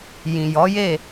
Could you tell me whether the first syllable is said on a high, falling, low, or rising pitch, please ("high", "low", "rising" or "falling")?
low